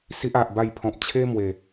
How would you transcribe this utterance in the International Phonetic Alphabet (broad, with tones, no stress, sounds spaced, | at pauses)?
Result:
s i˦ ʔ a˨ ʔ b a˥˧ j pʰ ɔ̃˨ p̚ t͡ɕʰ e˦ m w e˨˩